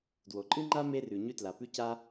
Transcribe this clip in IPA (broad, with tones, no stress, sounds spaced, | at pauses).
d w o˩ ǃʼ ɨ˥ ŋ͡ǃ a˥ m e˥ r ʉ˩ ɲ ʉ˥ t l a˩ p ʉ˥ c a˥